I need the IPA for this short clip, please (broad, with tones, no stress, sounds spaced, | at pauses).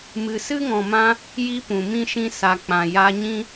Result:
m ɨ˨ s ɨ˦ ŋ ɔ̃˨ m ã˧ | j i˦ p ũ˨ m ĩ˦ ʃ ĩ˦ s a˨ k͡p ã˨ j a˧ ɲ ĩ˦